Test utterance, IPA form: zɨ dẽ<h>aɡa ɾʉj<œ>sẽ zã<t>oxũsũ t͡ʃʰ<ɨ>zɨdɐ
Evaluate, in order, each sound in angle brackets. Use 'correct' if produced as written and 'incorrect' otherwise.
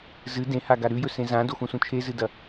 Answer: correct, incorrect: ɵ, incorrect: d, incorrect: e

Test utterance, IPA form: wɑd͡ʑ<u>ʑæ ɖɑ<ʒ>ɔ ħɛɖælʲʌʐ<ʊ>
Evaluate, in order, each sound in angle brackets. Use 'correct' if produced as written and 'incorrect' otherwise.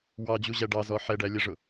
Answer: correct, incorrect: z, correct

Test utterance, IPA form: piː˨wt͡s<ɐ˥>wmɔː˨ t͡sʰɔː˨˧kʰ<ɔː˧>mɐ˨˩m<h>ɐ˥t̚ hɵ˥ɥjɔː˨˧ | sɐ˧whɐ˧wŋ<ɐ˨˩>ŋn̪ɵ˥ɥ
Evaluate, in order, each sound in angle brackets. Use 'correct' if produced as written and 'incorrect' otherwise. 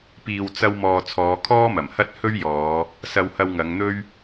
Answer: incorrect: ɐ˧, incorrect: ɔː˥, correct, incorrect: ɐ˨˧

